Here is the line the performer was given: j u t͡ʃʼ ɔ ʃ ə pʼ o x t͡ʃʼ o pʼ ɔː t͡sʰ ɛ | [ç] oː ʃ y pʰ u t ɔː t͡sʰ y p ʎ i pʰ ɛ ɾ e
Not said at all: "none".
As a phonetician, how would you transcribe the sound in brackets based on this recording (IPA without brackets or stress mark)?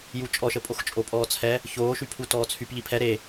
ç